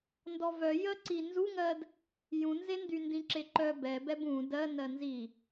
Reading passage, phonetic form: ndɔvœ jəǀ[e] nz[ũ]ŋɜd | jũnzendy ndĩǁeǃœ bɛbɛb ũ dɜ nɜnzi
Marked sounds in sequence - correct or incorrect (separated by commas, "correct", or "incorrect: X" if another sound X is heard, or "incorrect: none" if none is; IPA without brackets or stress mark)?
incorrect: i, incorrect: u